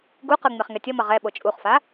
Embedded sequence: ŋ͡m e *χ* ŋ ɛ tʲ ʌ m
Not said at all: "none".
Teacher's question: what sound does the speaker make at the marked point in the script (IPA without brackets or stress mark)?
χ